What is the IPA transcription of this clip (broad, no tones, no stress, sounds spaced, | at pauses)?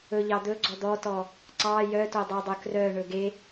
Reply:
ɵ ʎ ɑ d̪ ɵ ɡ͡ǀ ɔ d̪ ɔ t ɔ | ǀ ɑ j œ t o dˤ o dˤ ɵ k r œ ɳ ɵ ɡ e